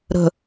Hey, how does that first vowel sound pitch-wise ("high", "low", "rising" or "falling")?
low